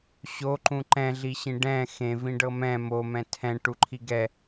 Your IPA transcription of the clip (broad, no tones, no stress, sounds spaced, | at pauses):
ɕ o ǃ ũ ǃ ɛ̃ ɮ i ɕ ĩ ɖ ɛ̃ x ẽ v ĩ ɖ ɤ m ɛ̃ m o m ɛ̃ tʰ ɛ̃ ʈ u ǃʰ i ɡ ɛ